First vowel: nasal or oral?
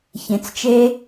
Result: nasal